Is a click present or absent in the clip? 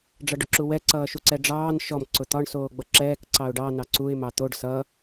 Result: present